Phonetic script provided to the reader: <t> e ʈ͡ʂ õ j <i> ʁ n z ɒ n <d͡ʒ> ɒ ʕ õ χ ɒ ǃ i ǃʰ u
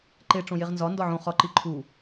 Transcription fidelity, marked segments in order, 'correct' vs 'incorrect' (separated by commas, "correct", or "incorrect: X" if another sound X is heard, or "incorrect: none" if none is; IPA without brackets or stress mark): incorrect: ǃ, incorrect: e, incorrect: d